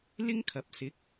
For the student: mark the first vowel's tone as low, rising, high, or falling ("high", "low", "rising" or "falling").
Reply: high